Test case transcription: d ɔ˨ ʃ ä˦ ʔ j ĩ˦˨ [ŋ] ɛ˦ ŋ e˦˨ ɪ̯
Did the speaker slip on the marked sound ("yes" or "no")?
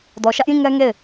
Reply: no